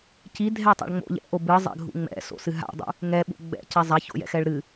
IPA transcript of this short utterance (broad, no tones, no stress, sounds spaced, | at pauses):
c i dʱ ɛ tˤ a̰ ɭ ŋ͡m o̰ ʎ ɛ̰ ʔ o b ɨ zˤ ɛ̰ ɡʱ ṵ ŋ͡m ɛ̰ s o̰ s ɨ ɦ a̰ dˤ ṵ | ŋ ɛ ɓ ṵ ɡ͡b ɛ̰ c ɛ zˤ a ç o̰ j ɛ̰ x ɛ ɭ ɾ ɨ